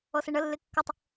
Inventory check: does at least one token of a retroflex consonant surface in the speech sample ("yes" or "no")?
yes